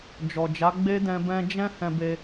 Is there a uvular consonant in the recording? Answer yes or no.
no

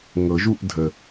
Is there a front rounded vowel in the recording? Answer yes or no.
no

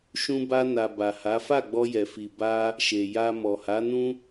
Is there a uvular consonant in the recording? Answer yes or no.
no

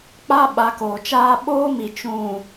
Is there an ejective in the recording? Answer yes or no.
no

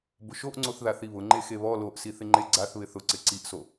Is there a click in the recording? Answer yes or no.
yes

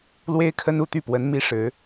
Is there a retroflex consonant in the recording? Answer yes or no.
yes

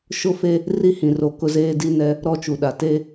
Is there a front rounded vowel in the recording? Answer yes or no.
no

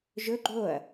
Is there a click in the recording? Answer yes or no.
yes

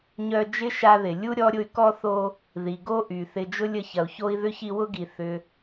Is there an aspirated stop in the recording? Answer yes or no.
no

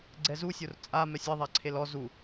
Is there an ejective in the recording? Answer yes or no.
yes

